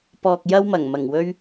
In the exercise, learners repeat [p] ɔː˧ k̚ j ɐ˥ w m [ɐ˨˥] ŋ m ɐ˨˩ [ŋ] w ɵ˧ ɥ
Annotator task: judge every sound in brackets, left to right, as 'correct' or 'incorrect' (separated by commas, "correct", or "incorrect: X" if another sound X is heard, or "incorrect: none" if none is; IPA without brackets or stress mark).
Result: correct, incorrect: ɐ˨˩, correct